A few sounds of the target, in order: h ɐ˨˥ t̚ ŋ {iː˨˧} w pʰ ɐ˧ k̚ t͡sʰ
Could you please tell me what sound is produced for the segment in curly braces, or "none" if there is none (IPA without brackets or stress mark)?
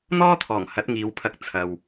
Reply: iː˨˧